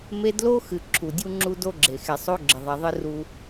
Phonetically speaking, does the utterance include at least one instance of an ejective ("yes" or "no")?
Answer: no